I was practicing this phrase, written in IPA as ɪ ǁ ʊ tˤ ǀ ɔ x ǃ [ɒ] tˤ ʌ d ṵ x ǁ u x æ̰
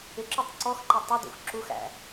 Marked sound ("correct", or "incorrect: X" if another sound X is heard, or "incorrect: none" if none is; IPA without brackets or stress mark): incorrect: ʌ